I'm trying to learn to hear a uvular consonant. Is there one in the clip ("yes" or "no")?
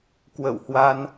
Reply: no